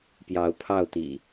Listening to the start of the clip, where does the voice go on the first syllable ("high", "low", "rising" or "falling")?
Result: rising